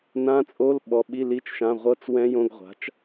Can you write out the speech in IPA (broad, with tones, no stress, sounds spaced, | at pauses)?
n ã˧˥˧ t͡sʼ o˧˥˧ l ɓ ɔ˨˥ ɓ i˧˥˧ l i˧˥˧ t͡ʃ ʃ ã˧˥˧ ʁʷ ɤ˧˥˧ t͡s w ɛ̃˦˥ j õ˧˥˧ ɡ ʁʷ a̤˨˥ t͡ʃ